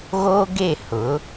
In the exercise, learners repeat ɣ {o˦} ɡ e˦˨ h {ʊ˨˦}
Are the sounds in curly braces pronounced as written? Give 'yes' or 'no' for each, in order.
no, yes

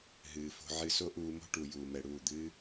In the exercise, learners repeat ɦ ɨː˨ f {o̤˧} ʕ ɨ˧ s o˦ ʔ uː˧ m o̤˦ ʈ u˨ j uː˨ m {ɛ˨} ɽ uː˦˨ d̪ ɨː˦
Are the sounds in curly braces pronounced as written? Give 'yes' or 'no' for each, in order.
yes, yes

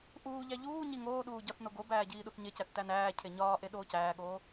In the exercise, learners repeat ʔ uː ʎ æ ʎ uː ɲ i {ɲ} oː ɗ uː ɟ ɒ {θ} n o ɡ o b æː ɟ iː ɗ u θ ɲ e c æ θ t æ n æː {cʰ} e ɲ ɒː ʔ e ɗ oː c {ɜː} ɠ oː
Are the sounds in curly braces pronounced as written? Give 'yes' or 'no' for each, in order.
no, yes, yes, no

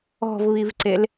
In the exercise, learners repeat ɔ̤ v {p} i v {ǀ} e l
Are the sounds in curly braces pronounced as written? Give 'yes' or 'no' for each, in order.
no, yes

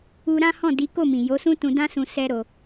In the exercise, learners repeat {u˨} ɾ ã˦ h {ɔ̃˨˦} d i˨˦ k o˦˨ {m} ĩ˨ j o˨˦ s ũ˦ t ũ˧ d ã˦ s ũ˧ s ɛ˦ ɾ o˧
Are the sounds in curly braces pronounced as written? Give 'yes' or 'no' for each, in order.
no, no, yes

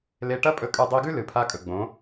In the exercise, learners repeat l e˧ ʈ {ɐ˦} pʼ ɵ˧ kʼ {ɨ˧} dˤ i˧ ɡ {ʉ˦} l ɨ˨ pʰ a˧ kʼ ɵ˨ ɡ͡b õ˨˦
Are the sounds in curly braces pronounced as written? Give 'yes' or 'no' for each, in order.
yes, yes, yes

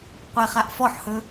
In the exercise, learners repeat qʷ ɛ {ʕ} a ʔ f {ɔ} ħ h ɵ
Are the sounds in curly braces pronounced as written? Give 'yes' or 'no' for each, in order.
no, yes

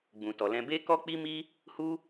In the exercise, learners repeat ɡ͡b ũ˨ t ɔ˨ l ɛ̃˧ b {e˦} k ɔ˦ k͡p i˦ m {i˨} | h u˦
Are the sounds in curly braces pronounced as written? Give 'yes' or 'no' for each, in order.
yes, no

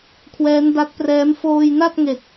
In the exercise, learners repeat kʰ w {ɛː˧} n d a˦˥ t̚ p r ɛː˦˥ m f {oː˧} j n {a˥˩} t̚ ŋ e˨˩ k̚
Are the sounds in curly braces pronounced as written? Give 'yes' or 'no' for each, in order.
no, yes, yes

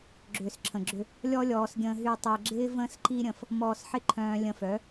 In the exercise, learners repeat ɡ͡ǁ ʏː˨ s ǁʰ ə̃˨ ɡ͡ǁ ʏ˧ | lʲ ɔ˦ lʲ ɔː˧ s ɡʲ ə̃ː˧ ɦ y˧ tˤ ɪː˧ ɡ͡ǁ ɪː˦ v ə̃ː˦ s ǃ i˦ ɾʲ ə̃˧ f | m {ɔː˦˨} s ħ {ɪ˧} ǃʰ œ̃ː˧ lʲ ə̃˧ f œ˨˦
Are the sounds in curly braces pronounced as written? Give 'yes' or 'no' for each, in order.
no, yes

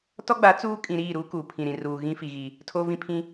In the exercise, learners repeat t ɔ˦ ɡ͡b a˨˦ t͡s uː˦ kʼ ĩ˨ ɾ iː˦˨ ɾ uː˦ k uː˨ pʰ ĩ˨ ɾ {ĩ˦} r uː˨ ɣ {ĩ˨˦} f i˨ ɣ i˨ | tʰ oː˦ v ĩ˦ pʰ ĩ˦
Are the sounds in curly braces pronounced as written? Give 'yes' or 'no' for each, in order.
no, no

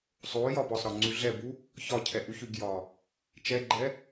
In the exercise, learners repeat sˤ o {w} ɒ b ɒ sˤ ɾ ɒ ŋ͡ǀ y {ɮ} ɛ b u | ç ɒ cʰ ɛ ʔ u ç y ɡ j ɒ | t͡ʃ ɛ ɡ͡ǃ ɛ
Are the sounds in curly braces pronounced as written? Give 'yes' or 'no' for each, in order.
no, yes

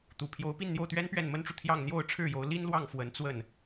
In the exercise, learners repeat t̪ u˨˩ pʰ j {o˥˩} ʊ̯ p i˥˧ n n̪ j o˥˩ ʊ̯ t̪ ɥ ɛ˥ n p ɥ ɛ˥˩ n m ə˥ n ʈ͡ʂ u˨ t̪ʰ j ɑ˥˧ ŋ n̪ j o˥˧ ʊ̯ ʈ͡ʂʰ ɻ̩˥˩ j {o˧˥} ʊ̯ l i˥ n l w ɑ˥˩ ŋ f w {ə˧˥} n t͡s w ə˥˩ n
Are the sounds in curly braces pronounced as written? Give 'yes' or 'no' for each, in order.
no, yes, yes

